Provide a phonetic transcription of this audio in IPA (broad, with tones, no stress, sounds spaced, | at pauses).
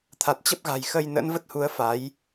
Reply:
t̪ʰ a˨˩ t̚ t͡ɕ ə˦˥ p̚ ɣ a̤˨˩ j x ə˧ j n ə̰˧˥ n v ə˦˥ t̚ h u˨˦ ə̯ f a˨˦ j